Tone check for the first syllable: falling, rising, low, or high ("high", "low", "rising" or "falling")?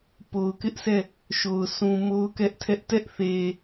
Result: low